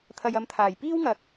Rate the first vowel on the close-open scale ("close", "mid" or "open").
open